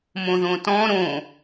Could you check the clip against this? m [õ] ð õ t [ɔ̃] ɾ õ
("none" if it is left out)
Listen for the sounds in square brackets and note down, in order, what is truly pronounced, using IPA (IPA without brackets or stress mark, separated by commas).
õ, ɔ̃